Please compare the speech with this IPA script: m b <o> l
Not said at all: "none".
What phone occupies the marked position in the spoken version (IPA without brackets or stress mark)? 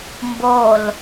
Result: o